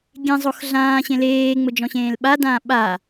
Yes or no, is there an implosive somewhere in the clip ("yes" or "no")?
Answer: yes